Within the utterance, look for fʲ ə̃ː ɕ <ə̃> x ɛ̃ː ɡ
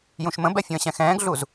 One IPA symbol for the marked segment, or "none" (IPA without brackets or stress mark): ɛ̃